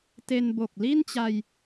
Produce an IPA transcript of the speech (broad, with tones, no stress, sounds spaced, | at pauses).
t e˧ n b o˨˩ k̚ l i˥˩ n t͡ɕ a˧ j